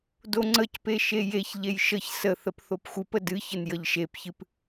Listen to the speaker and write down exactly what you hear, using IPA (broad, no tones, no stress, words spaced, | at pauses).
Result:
doŋ͡ǀəcpe ʃejeçʎej ʃəç səθəp θopxʷɨpə dɨçən jəʎʃepçɨp